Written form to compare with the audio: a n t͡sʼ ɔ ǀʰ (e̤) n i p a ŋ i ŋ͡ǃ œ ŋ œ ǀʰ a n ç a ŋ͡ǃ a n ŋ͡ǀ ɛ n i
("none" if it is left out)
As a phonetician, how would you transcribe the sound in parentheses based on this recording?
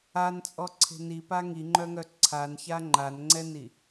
e̤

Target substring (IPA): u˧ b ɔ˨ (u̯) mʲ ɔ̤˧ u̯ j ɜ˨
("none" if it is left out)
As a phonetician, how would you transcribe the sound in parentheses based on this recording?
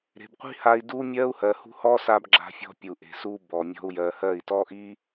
none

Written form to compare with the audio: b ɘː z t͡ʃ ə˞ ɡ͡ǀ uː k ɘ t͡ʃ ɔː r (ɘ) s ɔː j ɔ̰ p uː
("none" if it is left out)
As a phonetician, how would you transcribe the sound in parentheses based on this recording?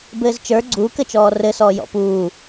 ɘ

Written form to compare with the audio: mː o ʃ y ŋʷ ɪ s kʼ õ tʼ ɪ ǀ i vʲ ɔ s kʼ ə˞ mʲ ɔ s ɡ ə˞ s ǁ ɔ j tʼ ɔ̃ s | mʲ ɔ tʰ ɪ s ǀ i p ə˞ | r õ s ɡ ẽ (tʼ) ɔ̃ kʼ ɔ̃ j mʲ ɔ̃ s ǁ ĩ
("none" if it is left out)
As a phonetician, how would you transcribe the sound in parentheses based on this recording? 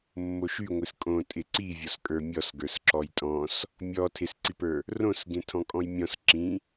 tʰ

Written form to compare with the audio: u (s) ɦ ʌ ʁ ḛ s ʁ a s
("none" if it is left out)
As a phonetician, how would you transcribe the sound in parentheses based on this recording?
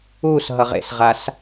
s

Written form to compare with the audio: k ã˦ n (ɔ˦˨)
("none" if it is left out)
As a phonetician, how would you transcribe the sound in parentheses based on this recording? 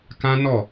ɔ˦˨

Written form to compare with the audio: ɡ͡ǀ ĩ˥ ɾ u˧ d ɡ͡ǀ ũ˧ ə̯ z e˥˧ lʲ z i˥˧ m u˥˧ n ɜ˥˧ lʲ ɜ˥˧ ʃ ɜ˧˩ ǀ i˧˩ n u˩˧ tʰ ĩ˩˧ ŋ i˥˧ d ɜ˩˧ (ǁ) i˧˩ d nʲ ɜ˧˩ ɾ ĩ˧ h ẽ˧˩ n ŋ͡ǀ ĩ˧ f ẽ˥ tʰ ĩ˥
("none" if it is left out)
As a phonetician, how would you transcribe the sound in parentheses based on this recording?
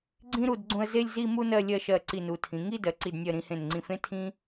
ǀ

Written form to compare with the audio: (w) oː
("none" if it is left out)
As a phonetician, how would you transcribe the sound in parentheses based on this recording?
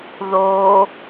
ð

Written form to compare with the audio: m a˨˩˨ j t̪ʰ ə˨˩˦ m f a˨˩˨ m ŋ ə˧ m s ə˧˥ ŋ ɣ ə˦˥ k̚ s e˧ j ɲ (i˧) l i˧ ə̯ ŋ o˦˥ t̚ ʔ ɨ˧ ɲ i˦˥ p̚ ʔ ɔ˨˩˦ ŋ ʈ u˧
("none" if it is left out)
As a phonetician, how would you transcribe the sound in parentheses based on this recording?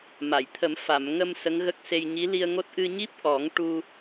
i˧˥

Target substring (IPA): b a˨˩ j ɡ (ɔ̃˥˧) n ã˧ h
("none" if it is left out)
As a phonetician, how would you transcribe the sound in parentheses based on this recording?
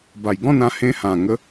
ɔ̃˥˧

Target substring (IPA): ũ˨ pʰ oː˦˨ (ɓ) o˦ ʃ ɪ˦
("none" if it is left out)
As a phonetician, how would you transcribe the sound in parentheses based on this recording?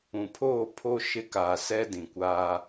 pʰ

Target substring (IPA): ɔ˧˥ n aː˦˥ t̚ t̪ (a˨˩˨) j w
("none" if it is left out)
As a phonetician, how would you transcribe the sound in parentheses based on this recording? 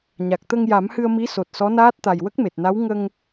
a˨˩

